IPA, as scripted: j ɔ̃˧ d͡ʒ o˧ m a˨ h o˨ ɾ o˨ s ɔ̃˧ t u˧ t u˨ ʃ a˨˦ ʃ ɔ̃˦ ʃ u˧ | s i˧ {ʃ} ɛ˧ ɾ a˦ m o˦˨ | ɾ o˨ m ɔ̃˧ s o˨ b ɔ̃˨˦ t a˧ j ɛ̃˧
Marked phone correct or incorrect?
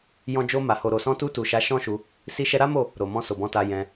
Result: correct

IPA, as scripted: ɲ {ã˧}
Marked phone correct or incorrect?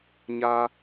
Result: incorrect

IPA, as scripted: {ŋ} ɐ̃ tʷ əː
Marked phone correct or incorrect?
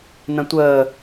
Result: incorrect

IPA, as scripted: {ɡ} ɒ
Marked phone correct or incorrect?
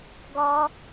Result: correct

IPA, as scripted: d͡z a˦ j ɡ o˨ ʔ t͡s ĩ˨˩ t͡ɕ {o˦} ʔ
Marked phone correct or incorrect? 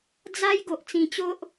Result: correct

